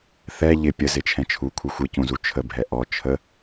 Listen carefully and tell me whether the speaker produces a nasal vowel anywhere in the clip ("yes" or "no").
yes